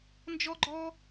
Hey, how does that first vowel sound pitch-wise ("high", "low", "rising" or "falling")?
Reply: high